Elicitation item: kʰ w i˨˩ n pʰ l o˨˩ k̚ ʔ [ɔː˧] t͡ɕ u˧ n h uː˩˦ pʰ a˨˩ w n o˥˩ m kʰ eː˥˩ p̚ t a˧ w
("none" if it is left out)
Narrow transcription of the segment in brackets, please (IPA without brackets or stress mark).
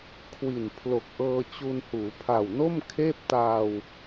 ɤː˧